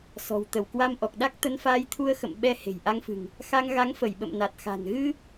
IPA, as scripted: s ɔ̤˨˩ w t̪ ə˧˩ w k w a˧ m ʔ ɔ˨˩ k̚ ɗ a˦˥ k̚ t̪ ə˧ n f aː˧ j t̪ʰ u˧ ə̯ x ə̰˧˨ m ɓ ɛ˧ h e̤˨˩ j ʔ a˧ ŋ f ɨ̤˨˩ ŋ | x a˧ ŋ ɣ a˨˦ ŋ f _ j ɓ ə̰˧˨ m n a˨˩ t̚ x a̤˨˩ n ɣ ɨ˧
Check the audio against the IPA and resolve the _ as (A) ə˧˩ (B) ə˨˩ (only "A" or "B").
A